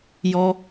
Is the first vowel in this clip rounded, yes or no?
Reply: yes